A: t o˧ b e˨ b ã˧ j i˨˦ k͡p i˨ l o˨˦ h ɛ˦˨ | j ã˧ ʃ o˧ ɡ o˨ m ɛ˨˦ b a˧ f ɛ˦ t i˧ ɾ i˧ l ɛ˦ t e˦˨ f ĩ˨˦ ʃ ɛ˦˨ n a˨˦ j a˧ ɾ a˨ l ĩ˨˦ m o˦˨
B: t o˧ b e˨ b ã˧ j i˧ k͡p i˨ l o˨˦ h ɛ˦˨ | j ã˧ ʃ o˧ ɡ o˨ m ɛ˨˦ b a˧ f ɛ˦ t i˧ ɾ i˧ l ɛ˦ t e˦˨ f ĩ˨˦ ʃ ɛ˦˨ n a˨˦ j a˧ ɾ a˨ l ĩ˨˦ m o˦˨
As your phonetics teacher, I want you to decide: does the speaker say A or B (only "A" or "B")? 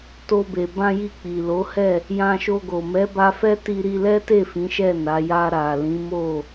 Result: B